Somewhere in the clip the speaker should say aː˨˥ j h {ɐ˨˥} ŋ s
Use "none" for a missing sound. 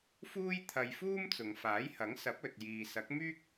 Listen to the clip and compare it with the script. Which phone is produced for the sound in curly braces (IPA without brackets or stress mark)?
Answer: ɐ˨˥